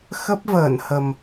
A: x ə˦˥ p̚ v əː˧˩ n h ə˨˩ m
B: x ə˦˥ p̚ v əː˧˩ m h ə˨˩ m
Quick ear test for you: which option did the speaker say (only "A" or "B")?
A